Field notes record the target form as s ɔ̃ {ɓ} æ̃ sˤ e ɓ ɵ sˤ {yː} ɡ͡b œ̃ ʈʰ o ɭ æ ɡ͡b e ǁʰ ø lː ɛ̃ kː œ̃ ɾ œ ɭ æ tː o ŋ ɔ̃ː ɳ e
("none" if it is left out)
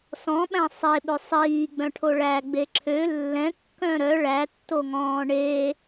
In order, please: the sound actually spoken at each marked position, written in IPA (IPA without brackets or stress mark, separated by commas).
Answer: ɓ, iː